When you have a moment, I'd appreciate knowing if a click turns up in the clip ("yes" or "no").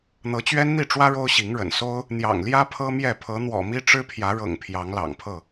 no